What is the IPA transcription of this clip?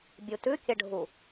bʲ u t ʉ kʲ ə ɖʱ u

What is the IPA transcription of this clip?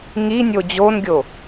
ŋ i nʲ o d͡ʑ o n ɡʲ o

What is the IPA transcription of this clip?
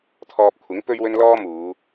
t̪ʰ ɔː˧ p̚ kʷʰ ɪ˨˥ ŋ p ɵ˥ ɥ w ɵ˥ n l ɔː˥ m uː˨˧

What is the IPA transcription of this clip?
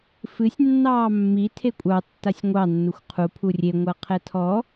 f ɨ sʲ nː ɑː mː i tʰ e kʷʼ ɑ tː a sʲ ŋʷ ɑ nː u xʷ qʰ u pʰ u rʲ e ŋʷ a qʰ ɛ tʰ ɔ

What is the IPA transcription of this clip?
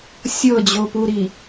sʲ ɤ d͡ʑ o p u ɾ i

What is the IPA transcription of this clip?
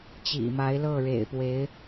t͡ɕ ḭ˨˩ m a˧˥ ɪ̯ l ɤ˥˩ ɻ ḛ˨˩ ɪ̯ p w e˧˥ ɪ̯

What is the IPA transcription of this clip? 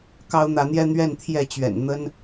k ɑ˦ ʊ̯ n̪ ä˨˦ n̪ j ɛ˦ n̪ ɥ ɛ˥˨ n t̪ʰ j ɛ˥˨ t͡ɕ ɥ ɛ̰˨˩ n n̪ ə˦ n

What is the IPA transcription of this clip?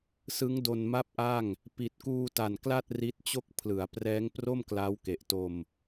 s ɯ˦˥ ŋ d o˧ n m a˥˩ p̚ ʔ a˥˩ ŋ | p i˨˩ t̚ k uː˧ t a˨˩ n k l a˥˩ t̚ r i˦˥ t̚ t͡ɕ o˥˩ k̚ pʰ l ɯ˩˦ a̯ p r ɛː˦˥ ŋ p r o˥˩ m k l a˦˥ w k e˨˩ ʔ t o˧ m

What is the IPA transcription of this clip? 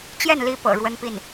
t͡ɕ j ɛ˥˩ n l i˧˥ p ɤ̰˨˩ ɻ w ə˥ n p i˥˩ n

